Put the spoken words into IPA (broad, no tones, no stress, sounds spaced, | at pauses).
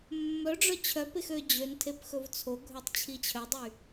mː œ ɖ͡ʐ œ t͡ɕʰ œ p e x ø d͡ʑ ø n tʰ e p x ɵ v t͡sʰ o ɡʱ œ tˤ t͡ɕʰ i t͡ɕʰ œ dˤ y